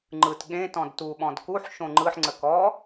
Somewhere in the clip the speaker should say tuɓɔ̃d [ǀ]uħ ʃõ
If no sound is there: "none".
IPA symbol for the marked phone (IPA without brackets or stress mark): k